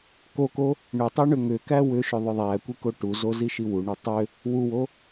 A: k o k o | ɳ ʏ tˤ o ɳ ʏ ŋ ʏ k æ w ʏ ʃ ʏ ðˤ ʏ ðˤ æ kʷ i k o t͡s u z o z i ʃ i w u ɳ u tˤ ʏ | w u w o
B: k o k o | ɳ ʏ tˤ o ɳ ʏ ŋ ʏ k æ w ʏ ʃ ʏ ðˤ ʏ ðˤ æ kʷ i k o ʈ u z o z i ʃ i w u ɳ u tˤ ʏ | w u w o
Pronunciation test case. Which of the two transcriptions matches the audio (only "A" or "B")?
B